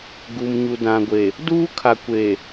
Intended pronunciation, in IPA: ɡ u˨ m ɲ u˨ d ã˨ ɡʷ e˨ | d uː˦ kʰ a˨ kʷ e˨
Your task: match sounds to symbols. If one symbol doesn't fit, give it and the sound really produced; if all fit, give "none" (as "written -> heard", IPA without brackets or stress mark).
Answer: none